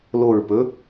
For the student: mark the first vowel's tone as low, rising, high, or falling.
low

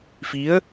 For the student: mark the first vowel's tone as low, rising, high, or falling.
rising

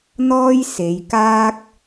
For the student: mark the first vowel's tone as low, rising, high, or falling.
high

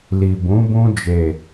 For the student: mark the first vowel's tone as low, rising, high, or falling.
low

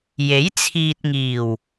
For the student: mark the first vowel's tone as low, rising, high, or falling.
rising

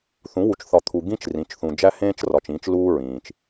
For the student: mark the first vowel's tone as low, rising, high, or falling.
rising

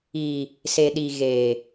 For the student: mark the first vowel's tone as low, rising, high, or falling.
low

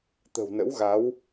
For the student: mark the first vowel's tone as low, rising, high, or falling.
low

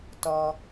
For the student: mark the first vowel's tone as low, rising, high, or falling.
low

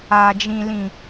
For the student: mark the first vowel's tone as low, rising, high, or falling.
low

